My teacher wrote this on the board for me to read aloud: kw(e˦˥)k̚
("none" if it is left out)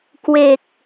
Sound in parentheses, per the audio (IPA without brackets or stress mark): e˨˩